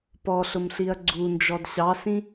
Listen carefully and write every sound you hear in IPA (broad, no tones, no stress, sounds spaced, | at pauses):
p ɔ ɬ ʊ m ɬ i ɐ̯ ɡ͡ǀ u n d͡ʒ ɔ d ɕ ɑ s ĩ